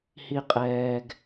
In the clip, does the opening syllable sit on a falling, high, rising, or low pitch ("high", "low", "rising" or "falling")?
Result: high